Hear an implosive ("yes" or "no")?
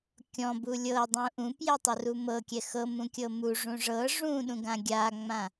yes